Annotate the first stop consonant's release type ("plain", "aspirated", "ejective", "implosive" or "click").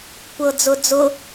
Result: plain